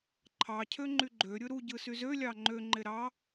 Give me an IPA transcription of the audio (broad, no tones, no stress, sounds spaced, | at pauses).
ǃʰ ɑ cʰ ø ŋ͡ǃ y ɡ͡ǃ ø ɾʲ ɯ ɾ u ɟ ɯ s y z ø lʲ ɑ ŋ͡ǃ ø ŋ͡ǃ e ɾ ɑ